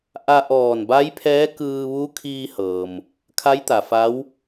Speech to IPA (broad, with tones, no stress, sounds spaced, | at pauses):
ʔ a˧ ʔ ɔː˧˩ n b a˧˥ j pʰ ɛː˧˥ k ɯː˧ ʋ u˧˥ kʰ iː˧ h ɤː˩ m | kʰ a˧˥ j t̪ a˩ f a˧˥ w